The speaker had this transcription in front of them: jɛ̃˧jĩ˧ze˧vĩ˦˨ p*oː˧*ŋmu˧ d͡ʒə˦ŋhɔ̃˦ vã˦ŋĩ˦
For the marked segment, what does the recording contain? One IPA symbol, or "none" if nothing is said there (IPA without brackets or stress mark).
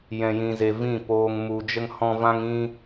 oː˧